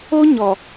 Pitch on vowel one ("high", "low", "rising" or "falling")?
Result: high